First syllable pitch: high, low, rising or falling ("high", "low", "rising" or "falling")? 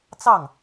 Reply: falling